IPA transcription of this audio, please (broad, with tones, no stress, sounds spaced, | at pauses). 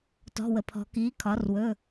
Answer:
t ɔ̤˩˧˩ w ə˩ pʰ ɔ̤˩˧ k iː˩˥ kʰ ɒ˩˧ r w ɵ˩˧˩